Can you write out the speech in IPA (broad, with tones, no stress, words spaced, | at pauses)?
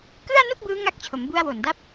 kɯ˥˩a̯nu˥˩k̚ bɯː˦˥ŋa˦˥k̚t͡ɕʰo˩˦m bu˧a̯wo˨˩nda˦˥p̚